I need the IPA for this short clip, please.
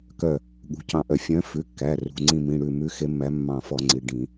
k œ˧˩ | ɠ ṳ˩˧˩ c ɑ̃˧˩ ʔ œ˧˩˧ fʲ œ̃˨˦ f ʉ˩˧˩ kː æ˩˧˩ r ṳ˩˧˩ ŋ͡ǀ ĩ˧˩ m ĩ˩˧˩ ɽ ʉ˧˩ m ʉ˨˦ x e˨˦ mː æ˨˦ mː ɑ̃˧˩ f ɔ˧˩˧ ŋ͡ǀ i˩˧˩ ɖ ĩ˧˩˧

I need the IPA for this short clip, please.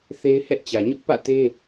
θ e˦ ɪ̯ h ɛ˦ ʔ t͡ɕ ä˨ ɲ ʊ˦ ʔ p ä̰˦˨ t e˦

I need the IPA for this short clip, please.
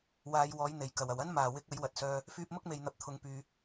w aː˨˧ j w ɔː˨˥ j n̪ e˨˩ j k ɐ˨˩ w ɐ˨˩ w ɐ˥ n m aː˨˩ w ɪ˨˥ k̚ ɐ˨˥ j w ɐ˨ t̚ s œː˧ | f yː˧ p̚ m ʊ˥ k̚ m e˨ j n̪ ɐ˨ p̚ t̪ʰ ʊ˨ ŋ p yː˨

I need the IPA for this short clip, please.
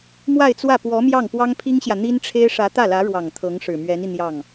m w a˥˧ ɪ̯ t͡s w ä˥˩ p w ɔ˧˥ m j ɑ˥˩ ŋ p w ɑ˥ ŋ pʰ i˥ ŋ ɕ j ä˨ n̪ i˥ n ʈ͡ʂʰ e˥ ɪ̯ ʂ ä˧˥ t̪ ä˥˩ l ä˧˥ ɻ w ɑ˨˩ ŋ t̪ʰ ɤ˧˥ ŋ ʂ ɻ̩˨˩ m ɥ ɛ˧˥ n i˧ n̪ j ɑ˥˩ ŋ

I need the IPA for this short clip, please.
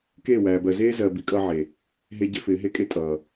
k eː˦˨ w æː˨ b ɜ˨ z eː˦ z ɜ˨ b i˨˦ kʼ ʌː˧ ʕ e˨ | ɦ e˦ ɟ ɪ˦ f ɪː˨˦ ɦ e˦ kʼ e˦ tʼ ʌː˨

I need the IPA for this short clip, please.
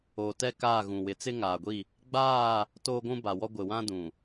o˨ t ɛ˦ k aː˦˨ ɣ ũ˨ w ɪ˨˦ t͡s ɪ˦ ŋ aː˨ ɡʷ i˦˨ | ɡ͡b aː˦˨ | t oː˦ ɡʷ ũ˦ b a˨ w ɔ˦ ɡʷ ɪ˨ w ã˦ d ũ˨

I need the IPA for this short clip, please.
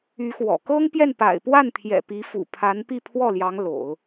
y˧˥ x w ɔ̰˨˩ k ɤ˥ ŋ p j ɛ˥˩ n p a̰˨˩ ɪ̯ p w a˥˩ n t̪ʰ j ɛ̰˨˩ p i˧˥ f ṵ˨˩ pʰ a˧˥ n p i˥˧ pʰ w ɔ˥˩ l j ɑ˧˥ ŋ l o̰˨˩˦ ʊ̯

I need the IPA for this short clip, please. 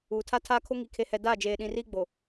uː˨ tʰ a˦ tʰ aː˦ kʰ o˦ ŋ i˨ kʰ e˨ h ɛ˨ d aː˦˨ d͡ʒ eː˨ ɗ ĩ˨ r i˦ ɡ͡b o˨

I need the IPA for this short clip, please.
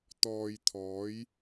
t̪ ɔː˨ j t̪ʰ ɔː˨˧ j

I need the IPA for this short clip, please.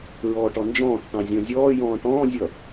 ɹ ɔː ʈ ɔ n d͡ʒ ɔ̃ː θ t ɑ̃ zʲ ɔ̃ zʲ ɔː j ɔ̃ː ʈ ɔ̃ː zʲ ʌ

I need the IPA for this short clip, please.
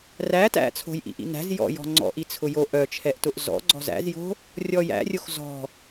r æ t æ̰ t͡sʰ o̤ j ʔ ḭ ʔ ḭ n æ̤ z j ɔ̰ j ɔ̤ ŋ͡ǀ ɔ̰ ʔ i t͡sʰ ʊ j o ʔ œ t͡ʃʰ ɛ ʔ t ʊ ʔ z ɔ̰ ɡ͡ǀ ɔ̤ z æ̰ z j o̤ | rʲ ɔ j æ̰ rʲ o x z ɔ̤

